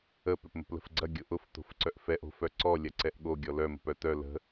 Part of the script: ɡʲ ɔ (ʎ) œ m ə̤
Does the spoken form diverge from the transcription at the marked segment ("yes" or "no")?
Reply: yes